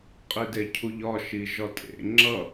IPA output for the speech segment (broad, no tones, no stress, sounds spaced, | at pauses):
qʼ i d e cʰ u ʎ ɒ ʃ i ʒ ɒ tʼ ḛ ŋ͡ǁ ʌ